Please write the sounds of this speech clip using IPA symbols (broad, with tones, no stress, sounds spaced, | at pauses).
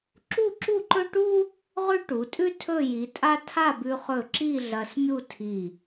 ǁ u˥˧ ǁ u˥˧ ǃ ɵ˥ ʈ u˥ | ʁ ʉ˥ ʈ u˩˧ tʼ ʉ˥ tʰ ɵ˥˧ j i˩˧ tʼ a˥ tʰ a˥˧ b ʉ˧ χ ɵ˧˩ ǁ i˥˧ ɮ ɐ˧ s mʲ u˥˧ tʰ i˧˩